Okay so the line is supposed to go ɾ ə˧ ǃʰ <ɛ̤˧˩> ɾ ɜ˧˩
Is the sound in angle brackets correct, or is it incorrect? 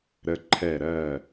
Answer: incorrect